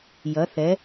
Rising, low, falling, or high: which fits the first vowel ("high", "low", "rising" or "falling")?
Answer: rising